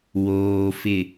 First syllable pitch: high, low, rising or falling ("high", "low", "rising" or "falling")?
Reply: low